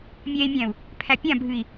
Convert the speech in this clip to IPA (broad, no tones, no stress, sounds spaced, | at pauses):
mʲ ɛː i̯ mʲ æ̃ u̯ | pʰ æ pʲ ã bʱ ɨ i̯